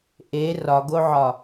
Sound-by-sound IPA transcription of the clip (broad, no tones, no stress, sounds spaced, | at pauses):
ʔ e r ɒ ɡ o ʕ ɒ